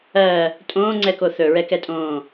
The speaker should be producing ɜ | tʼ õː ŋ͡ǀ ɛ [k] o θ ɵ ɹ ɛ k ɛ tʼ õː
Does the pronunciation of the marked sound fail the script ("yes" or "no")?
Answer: no